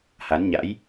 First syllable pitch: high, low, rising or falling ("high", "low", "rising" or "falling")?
rising